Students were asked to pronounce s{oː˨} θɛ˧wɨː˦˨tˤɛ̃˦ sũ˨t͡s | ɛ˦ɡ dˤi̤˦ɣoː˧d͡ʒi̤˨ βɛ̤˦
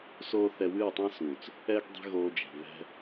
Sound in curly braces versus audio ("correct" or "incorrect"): incorrect